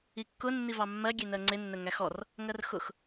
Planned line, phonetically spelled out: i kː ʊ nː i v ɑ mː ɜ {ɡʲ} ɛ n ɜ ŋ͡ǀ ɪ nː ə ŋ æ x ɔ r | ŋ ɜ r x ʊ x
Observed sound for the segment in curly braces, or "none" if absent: ɡʲ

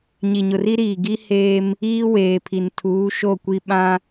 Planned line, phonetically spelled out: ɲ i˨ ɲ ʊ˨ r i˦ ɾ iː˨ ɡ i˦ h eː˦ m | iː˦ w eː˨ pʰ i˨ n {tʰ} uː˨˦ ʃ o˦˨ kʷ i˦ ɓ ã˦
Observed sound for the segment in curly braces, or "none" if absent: tʰ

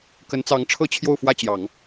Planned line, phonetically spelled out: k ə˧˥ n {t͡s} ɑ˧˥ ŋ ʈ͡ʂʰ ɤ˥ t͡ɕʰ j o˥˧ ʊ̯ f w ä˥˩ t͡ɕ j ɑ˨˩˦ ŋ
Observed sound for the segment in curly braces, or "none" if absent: t͡s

